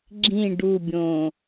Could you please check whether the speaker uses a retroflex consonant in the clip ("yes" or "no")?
yes